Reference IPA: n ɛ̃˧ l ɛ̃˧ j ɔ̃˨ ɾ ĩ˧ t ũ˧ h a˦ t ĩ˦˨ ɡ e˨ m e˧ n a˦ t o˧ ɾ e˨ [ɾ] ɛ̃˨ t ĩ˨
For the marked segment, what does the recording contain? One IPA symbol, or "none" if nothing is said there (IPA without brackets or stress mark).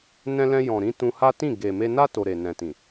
n